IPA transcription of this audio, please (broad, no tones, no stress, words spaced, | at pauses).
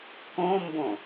kõmbõ